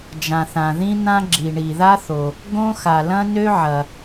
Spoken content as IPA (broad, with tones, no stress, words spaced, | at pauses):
d͡ʒã˩θã˩ ðĩ˥n̪ã˥ ɡ͡ǁi˩ɳi˩ða˥θo˩ | ɡõ˥xa˩ lɐ̃˥nø˥ʕɐ˩